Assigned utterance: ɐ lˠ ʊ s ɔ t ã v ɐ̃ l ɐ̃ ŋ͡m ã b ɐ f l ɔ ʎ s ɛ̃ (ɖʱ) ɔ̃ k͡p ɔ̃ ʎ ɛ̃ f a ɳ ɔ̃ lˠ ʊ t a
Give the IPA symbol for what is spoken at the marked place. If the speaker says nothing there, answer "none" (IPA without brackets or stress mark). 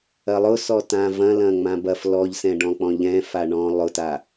ɖ